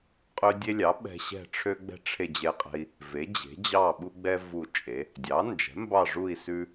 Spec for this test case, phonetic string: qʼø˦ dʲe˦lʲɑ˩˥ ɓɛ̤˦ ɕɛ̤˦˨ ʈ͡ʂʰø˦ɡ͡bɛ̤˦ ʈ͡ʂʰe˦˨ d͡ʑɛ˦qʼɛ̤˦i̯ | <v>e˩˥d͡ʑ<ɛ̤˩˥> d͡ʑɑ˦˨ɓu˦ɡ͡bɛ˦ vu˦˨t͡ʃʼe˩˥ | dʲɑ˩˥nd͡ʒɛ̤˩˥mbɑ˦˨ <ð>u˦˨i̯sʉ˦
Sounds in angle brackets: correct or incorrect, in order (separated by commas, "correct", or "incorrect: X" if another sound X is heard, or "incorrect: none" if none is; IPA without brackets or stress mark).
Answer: correct, incorrect: e̤˩˥, incorrect: ʐ